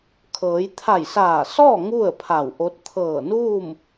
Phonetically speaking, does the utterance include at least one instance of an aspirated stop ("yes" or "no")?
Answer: yes